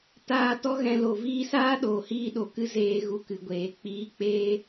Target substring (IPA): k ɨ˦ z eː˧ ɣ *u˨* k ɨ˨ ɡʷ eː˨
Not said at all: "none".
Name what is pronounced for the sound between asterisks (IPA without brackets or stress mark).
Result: u˨